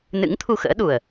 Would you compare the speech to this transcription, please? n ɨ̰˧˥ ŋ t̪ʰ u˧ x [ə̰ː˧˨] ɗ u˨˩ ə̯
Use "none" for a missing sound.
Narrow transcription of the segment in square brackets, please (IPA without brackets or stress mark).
ə̰ː˧˥